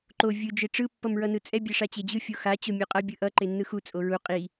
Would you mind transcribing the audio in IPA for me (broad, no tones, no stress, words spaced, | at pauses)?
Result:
ǃo vʲɯ d͡ʒeʈ͡ʂɯ pːʌmɹʌnɯt͡sʼɛ bʲɛʂat͡ɕed͡ʑɯ fʲoxa t͡ɕomʲoqʼʌ bʲɯʔʌ ǃenːɯxu t͡sʼoɹu qʼi